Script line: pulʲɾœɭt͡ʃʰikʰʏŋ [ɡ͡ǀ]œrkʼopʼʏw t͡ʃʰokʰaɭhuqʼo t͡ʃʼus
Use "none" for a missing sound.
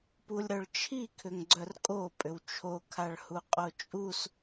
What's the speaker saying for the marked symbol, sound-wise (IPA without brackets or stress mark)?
ɡ͡ǀ